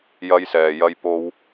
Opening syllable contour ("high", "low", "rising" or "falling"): high